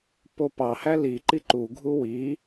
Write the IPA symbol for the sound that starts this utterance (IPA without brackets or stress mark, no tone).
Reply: p